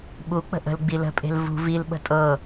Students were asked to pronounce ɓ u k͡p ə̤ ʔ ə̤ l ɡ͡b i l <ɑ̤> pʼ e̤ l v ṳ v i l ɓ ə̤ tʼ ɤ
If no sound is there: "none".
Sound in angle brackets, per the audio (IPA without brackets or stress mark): ə̤